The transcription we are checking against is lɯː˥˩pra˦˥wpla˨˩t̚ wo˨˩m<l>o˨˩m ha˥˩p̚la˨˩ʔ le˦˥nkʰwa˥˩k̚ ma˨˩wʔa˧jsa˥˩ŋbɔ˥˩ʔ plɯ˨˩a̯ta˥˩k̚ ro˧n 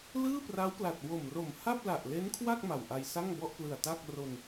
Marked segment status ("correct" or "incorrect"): incorrect